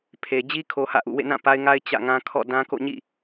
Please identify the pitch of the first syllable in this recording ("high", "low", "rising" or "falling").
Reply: low